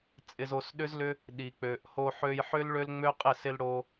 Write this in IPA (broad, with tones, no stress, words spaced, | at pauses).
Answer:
t͡sʼɪ˧zo˧sɗʏ˦zlʏ˦ | ɗi˨k͡pø˨ʔho˧ ħø˧jħʏ˦l ɭø˦lŋ͡mø˦qʼɪ˦˨ sɪ˧lɽo˧